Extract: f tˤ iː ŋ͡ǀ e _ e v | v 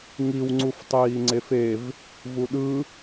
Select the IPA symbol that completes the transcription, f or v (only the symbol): f